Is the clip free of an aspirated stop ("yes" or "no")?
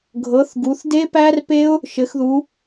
yes